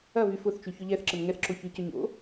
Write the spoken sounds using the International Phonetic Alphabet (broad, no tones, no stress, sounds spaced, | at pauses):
ɐ v y f ʊ θ t͡ʃ y ç ʊ ʎ ɛ θ ǁ ə n ŋ ɛ θ ǁ o ç y c ʏ ɲ o̰